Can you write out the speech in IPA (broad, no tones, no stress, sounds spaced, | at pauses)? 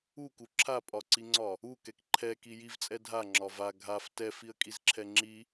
u k u ǁʰ a pʼ ɒ ǀ i ŋ͡ǀ ɒ | u k ɛ k ǃʰ ɛ k i j i v t͡sʼ ɛ dʱ a ŋ͡ǁ ɒ v a ɡʱ a f t ɛ f i ə̯ kʼ i z ǁʰ ɛ ŋ͡ǁ i